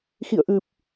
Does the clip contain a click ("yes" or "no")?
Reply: no